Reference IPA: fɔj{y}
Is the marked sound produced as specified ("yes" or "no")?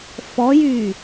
yes